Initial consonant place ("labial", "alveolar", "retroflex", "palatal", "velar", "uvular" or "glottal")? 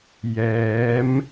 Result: palatal